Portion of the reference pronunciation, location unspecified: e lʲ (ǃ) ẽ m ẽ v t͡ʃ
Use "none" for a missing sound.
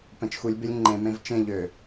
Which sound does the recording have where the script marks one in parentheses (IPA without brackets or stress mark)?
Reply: ŋ͡ǃ